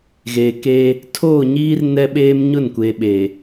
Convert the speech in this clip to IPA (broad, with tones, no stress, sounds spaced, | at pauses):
ɣ e˨ k eː˦ | tʰ oː˦˨ ɲ iː˦ r n ɛ˦ ɓ eː˦ m ɲ ʊ˦˨ n kʷ e˨ ɓ e˨